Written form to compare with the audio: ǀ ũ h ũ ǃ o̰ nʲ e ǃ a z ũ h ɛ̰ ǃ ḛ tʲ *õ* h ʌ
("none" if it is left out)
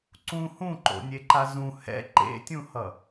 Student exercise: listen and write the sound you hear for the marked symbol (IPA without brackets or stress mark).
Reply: ũ